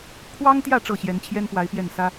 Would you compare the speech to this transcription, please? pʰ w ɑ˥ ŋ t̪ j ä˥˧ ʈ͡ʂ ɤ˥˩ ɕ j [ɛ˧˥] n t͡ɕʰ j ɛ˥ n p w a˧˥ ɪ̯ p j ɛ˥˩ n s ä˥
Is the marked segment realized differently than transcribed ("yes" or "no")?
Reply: no